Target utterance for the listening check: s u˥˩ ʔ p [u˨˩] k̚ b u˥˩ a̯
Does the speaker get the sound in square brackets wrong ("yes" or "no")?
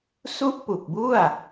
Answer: no